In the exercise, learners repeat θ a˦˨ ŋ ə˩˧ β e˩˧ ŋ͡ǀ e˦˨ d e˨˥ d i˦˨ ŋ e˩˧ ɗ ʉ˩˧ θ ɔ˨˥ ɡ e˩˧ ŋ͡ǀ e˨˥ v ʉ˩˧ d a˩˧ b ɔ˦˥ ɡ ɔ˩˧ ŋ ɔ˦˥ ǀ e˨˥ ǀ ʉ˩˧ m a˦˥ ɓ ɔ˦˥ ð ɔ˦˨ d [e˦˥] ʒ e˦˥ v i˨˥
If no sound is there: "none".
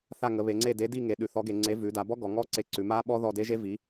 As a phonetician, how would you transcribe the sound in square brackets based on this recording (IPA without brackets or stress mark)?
e˦˥